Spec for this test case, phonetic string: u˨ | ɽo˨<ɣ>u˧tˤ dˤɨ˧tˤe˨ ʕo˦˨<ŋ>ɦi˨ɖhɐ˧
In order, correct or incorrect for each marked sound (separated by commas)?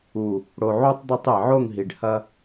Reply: incorrect, correct